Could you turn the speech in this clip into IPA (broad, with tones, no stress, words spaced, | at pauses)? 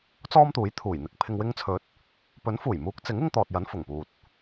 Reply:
t͡sɔː˥mt̪uː˨˥jt̪ʰuː˨˩jn̪ɪ˧k̚ pʰɪ˨ŋwɪ˧ŋt͡sʰɵ˨˥t̚ | pɵ˨˥nfuː˨˩jmuː˨˥k̚t͡sɪ˨˥ŋ ɪ˥ŋt̪ɔː˨t̚jɐ˨˥n fʊ˨˩ŋpuː˨t̚